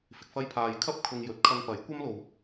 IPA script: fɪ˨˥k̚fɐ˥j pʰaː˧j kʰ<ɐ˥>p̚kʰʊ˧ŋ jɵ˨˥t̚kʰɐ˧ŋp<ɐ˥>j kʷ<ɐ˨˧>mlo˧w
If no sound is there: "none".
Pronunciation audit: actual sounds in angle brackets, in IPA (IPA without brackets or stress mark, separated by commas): ɐ˥, ɐ˨˥, ɐ˥